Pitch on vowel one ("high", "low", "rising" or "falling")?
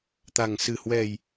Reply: low